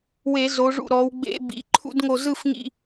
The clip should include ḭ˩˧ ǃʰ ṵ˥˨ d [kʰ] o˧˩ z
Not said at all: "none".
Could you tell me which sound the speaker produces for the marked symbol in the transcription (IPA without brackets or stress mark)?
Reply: ŋ